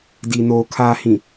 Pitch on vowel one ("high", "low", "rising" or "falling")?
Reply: low